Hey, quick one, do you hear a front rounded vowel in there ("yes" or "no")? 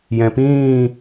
no